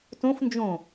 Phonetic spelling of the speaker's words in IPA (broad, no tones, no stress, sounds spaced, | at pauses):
t õ f n d͡ʒ õ